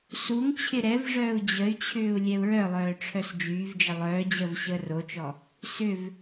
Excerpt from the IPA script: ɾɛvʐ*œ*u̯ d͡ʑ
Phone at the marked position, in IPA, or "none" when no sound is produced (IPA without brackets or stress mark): œː